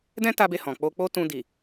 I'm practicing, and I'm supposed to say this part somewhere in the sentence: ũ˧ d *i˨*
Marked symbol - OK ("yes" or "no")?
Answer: yes